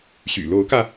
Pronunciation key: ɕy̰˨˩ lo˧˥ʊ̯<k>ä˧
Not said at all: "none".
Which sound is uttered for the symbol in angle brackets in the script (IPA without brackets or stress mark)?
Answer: k